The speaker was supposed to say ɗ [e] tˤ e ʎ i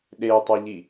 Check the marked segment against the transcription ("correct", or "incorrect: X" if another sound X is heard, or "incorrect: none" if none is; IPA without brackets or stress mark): correct